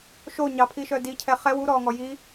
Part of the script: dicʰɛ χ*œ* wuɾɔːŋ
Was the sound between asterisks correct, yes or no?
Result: no